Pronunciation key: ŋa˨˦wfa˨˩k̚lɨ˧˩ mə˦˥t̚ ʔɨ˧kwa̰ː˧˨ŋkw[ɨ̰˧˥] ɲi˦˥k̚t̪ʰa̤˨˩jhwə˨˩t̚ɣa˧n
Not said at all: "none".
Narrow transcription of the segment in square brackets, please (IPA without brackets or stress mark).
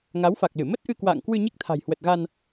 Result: ɨ˧